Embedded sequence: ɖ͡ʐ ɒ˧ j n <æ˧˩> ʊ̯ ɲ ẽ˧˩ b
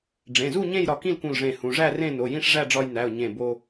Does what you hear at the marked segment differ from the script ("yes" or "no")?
yes